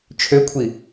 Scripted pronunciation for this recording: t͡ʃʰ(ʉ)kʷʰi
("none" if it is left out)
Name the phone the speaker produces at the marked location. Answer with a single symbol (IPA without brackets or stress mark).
ø